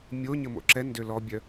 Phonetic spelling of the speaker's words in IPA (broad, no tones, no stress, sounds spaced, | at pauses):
mʲ o ɲ ə m o̰ ǁ ɛ n d ø l ɔ bʲ œ